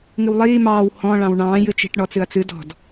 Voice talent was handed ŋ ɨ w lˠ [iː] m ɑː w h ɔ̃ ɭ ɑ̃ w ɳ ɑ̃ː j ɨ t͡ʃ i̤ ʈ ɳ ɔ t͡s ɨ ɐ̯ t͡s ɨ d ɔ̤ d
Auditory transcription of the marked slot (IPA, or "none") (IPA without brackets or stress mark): iː